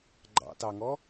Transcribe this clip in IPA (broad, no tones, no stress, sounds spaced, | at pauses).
ɡ͡ǃ ɑ̰ t ɑ ŋ ɔ